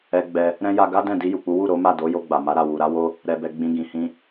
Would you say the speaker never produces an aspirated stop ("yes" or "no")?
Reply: yes